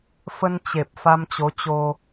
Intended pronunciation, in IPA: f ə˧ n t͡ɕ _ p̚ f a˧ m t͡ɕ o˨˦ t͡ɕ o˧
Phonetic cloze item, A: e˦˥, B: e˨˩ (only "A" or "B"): B